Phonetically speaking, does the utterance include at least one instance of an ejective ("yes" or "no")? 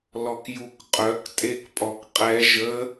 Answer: yes